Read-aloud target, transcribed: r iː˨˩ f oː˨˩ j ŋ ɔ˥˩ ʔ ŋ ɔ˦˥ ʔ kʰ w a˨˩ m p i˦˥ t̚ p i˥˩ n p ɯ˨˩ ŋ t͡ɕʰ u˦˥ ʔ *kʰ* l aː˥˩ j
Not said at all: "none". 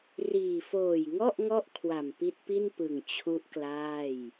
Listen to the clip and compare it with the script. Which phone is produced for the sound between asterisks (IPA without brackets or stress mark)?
k